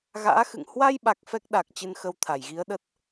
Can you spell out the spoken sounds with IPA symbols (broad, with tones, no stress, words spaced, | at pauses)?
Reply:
ɣa̰ː˧˥xɨ̰˧˨ŋ hwa˧jɓa˨˩k̚ fɛ˦˥k̚ɗa˨˩k̚ t͡ɕɨ˧nxə˧wt̪ʰa˧˩j ɣi˨˦ə̯ɗə˦˥t̚